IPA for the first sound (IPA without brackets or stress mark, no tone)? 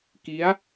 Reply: k